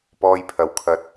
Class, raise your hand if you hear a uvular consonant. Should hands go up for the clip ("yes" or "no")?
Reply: no